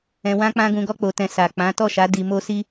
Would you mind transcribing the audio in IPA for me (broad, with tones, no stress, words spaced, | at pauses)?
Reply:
ɛ̃˧wã˦ k͡pã˦ɡũ˧ɡɔ˦ k͡po˧tɛ̃˧ sa˨k͡pã˨˦ tɔ˦˨ʃa˨˦ di˧mo˦si˦